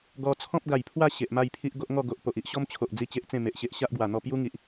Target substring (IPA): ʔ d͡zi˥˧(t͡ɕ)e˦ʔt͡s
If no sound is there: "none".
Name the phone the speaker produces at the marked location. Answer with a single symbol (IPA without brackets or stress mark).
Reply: t͡ɕ